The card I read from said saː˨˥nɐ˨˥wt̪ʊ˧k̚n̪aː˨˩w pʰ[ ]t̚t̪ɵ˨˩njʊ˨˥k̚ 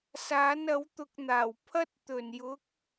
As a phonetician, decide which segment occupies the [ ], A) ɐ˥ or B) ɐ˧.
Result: A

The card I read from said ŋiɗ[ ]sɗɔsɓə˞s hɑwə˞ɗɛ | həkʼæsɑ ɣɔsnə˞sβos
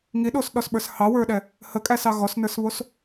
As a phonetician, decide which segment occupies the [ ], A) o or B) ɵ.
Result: A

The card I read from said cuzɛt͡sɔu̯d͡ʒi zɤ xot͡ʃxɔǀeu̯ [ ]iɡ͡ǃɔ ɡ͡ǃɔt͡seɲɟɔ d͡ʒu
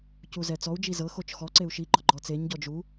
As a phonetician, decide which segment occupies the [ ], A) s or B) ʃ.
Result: B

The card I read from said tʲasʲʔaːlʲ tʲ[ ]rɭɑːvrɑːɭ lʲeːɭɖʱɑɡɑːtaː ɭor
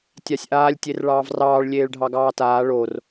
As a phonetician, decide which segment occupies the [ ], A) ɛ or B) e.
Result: B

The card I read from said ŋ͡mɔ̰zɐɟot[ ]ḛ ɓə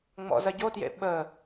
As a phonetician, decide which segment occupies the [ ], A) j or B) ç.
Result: A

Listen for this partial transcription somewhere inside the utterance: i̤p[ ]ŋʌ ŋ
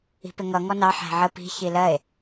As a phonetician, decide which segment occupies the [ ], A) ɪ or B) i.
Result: A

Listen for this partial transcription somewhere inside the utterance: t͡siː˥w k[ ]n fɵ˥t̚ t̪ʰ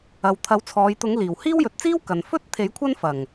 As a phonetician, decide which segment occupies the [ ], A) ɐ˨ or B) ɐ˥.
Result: A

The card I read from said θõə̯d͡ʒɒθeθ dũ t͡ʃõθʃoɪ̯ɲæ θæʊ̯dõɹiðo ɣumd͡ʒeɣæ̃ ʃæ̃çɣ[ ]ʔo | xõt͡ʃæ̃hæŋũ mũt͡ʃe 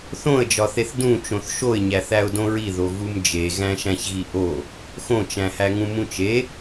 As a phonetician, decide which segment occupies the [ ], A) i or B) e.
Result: A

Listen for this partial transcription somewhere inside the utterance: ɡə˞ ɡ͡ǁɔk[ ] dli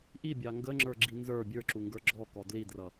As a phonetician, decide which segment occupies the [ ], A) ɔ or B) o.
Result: A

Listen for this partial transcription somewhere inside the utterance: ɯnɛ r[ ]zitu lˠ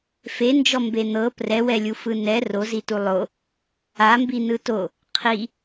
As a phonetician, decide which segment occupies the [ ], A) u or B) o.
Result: B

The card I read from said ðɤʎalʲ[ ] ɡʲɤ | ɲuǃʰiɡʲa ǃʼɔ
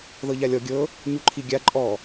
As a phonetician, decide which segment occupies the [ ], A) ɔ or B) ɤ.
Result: A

